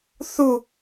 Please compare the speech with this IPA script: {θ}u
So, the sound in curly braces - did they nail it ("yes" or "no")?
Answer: yes